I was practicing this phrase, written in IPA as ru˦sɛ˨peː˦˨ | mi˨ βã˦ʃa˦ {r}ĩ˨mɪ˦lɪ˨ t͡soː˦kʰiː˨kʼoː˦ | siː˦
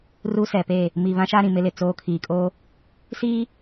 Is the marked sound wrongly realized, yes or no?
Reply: yes